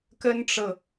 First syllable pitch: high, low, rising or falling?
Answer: high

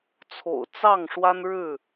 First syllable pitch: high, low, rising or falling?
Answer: low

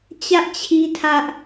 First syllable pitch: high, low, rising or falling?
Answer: high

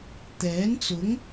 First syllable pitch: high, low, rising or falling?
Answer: rising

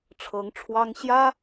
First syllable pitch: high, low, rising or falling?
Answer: rising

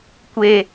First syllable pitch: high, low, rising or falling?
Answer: low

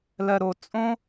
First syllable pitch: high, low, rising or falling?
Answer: low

